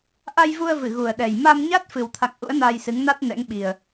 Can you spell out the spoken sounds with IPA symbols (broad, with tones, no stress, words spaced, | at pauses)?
ʔa˧jvu˧ə̯vɨ˧˩ ɣu˨˩ə̯ɗɛ˨˩j ma˧mɲa˦˥t̚ fɨ˨˩wt̪ʰa̰˧˨ŋ ʔṵ˧˥ə̯naː˧jsɨ˨˦ŋna˦˥t̚ nɛ̰˧˥ŋɓi˨˩ə̯